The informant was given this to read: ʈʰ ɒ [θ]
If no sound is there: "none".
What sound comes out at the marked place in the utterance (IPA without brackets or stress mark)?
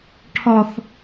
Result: θ